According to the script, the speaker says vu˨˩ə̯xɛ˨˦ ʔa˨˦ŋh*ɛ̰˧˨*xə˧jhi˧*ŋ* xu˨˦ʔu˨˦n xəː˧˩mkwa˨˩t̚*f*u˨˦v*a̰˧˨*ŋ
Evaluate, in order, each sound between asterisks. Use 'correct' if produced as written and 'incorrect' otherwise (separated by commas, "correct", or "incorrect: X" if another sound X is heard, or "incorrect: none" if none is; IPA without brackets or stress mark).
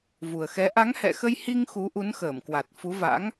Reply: correct, correct, correct, incorrect: a̰˧˥